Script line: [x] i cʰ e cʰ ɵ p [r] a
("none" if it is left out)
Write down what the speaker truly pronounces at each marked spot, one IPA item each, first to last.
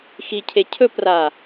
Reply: x, r

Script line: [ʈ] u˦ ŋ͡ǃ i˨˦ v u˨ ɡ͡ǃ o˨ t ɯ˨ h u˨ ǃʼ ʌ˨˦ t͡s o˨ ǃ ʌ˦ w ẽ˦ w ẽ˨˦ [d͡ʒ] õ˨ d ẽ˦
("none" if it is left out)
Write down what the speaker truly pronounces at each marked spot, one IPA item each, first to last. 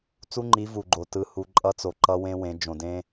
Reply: t͡s, d͡ʒ

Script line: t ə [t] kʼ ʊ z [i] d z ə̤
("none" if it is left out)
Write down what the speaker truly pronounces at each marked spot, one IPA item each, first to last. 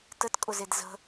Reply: t, e

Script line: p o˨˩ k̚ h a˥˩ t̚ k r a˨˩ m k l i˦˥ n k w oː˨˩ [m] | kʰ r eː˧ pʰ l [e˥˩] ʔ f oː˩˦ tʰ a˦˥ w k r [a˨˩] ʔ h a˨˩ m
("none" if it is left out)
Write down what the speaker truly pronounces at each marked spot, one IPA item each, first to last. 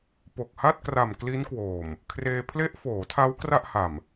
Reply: m, e˦˥, a˥˩

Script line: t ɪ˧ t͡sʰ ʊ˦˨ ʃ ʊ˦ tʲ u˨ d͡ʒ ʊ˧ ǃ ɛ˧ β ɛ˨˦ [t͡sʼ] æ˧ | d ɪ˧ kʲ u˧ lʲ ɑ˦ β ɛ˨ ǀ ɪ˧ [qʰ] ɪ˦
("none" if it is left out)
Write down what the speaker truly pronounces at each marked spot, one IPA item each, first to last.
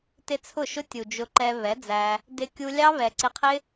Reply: d͡z, qʰ

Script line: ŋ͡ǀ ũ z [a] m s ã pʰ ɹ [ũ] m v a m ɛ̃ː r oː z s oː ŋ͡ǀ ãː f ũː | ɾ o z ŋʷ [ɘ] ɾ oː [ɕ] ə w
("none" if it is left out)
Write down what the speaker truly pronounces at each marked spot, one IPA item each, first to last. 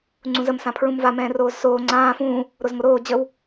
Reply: ə, ũ, ɘ, d͡ʑ

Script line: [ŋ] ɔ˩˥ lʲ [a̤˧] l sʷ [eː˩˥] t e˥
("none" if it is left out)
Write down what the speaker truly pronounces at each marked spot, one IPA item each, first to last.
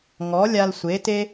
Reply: ŋ, a˧, e˩˥

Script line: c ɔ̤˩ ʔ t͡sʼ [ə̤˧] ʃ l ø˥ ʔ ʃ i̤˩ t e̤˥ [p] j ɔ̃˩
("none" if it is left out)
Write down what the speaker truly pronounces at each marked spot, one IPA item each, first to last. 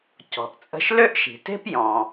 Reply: ə̤˧, p

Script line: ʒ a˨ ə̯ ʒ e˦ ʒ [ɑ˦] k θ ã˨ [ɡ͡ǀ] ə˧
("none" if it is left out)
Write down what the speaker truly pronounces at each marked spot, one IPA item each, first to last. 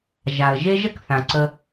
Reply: ə˦, ǀ

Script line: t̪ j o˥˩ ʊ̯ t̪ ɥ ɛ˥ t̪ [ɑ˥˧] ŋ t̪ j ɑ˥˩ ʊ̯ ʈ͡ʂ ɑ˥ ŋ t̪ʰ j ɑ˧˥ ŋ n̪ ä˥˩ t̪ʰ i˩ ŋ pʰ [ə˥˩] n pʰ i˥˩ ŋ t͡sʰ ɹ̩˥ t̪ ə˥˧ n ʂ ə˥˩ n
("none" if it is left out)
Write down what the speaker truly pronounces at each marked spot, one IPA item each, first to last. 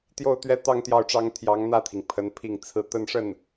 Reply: ɑ˥˧, ə˧˥

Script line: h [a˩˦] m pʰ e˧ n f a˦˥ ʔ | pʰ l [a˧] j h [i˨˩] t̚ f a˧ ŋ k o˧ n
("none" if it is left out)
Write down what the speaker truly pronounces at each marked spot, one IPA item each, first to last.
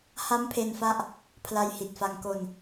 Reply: a˦˥, a˧, i˨˩

